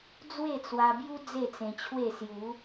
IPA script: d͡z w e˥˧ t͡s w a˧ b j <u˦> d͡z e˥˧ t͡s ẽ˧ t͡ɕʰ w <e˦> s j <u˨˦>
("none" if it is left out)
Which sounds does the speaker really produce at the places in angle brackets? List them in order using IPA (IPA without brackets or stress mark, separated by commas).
u˦, e˥˧, u˨˦